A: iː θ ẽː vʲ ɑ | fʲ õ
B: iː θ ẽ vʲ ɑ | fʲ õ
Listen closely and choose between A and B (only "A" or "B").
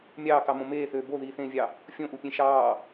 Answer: A